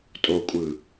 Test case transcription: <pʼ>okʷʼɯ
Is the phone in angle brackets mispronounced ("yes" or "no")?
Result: yes